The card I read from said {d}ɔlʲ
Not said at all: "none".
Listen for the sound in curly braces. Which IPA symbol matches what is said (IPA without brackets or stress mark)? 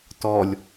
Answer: t